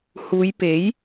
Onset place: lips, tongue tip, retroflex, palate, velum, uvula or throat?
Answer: throat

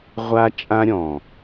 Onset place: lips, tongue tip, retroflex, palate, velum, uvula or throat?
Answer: uvula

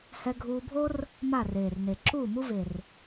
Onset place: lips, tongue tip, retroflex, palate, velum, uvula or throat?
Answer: throat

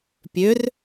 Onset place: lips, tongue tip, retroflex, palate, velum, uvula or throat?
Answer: lips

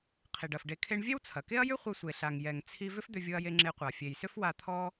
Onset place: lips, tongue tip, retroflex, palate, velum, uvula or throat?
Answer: uvula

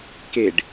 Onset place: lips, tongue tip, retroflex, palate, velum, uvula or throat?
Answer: velum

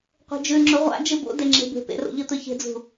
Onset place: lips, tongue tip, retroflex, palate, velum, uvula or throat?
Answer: uvula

